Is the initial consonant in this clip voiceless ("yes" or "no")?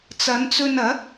yes